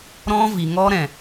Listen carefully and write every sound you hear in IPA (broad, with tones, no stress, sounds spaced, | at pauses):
ɾ ɔ̃˦ v i˨ ŋ ɔ˦ ɾ ɛ̃˨